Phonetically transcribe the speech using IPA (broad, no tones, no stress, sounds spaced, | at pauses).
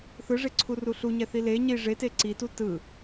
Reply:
θ ɯ ʐ e ǀʰ u r u ɬ u ɲ ɛ θ i l e ɲ i ʐ e t e ǀ i t u t ɯ